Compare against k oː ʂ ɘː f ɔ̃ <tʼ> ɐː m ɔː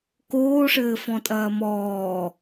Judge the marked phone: correct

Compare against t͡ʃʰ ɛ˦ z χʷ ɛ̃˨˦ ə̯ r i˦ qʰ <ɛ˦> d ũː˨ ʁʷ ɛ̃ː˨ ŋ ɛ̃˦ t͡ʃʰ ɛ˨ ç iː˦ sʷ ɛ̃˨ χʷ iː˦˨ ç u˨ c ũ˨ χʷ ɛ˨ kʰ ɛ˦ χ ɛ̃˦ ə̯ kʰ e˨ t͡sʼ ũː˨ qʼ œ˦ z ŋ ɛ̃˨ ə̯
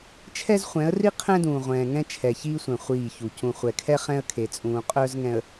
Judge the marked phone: incorrect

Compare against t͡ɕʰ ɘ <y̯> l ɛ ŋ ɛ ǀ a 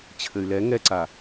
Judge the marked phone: correct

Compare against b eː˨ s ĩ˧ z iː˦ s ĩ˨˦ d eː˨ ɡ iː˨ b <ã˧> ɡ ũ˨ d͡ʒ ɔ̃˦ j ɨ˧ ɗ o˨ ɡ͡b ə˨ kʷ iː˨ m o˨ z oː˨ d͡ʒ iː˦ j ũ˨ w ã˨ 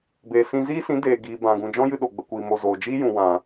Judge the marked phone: incorrect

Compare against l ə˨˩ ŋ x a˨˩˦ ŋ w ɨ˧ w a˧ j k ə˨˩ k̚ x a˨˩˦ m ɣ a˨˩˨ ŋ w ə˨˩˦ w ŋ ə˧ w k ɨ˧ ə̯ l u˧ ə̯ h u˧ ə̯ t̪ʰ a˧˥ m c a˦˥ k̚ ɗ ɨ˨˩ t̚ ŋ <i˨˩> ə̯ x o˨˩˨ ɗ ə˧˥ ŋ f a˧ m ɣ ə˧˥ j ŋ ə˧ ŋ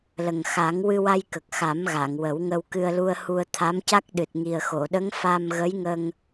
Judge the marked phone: correct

